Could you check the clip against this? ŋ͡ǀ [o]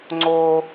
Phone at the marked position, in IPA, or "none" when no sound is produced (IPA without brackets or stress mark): o